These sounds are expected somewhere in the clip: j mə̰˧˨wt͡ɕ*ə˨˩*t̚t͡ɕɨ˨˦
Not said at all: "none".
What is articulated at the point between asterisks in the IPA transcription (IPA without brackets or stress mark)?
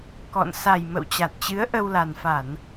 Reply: a˨˩